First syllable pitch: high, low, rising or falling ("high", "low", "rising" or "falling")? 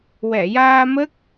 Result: low